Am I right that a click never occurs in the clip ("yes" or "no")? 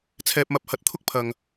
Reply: yes